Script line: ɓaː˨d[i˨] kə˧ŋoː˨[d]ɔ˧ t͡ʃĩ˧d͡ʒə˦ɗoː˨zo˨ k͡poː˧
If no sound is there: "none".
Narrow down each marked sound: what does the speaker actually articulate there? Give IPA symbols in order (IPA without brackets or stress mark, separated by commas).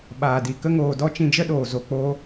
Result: i˨, d